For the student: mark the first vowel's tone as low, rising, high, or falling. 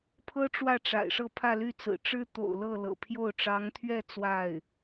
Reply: high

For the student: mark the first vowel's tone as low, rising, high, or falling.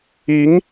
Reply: rising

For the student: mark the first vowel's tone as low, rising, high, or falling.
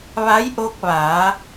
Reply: rising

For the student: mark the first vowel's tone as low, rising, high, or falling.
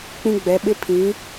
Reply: high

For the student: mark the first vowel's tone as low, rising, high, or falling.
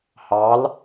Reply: rising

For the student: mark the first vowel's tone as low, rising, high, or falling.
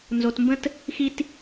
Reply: low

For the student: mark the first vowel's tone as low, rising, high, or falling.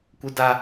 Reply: high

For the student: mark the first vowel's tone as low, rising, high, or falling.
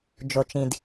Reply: low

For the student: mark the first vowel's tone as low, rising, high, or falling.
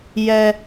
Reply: high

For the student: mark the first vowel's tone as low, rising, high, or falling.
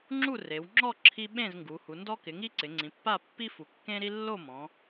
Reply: falling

